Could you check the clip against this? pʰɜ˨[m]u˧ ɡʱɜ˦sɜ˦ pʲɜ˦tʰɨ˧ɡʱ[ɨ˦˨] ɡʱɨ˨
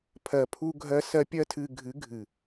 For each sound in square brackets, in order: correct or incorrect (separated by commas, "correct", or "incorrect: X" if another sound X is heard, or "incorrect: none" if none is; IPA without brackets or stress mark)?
incorrect: pʰ, incorrect: ɨ˨˦